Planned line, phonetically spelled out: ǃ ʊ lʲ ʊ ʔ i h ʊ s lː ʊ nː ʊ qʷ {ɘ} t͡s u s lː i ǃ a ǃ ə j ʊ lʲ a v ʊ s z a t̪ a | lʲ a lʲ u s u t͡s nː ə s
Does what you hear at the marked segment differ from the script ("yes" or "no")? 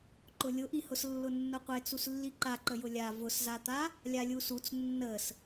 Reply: yes